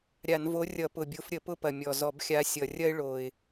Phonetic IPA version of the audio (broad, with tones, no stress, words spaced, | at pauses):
ɾʲa˧˩˧nvo˨˥ rʲʌ˧˩˧pʊ˨˩ bʲo˨˥f ɾʲə˧˩˧pʊ˦pɐ˨˩ mʲɔ˨˩zɔ˧˩˧b xʲa˨˥ sʲʌ˨˩rʲɐ˦ɪ̯ ɭo˨˩ɪ̯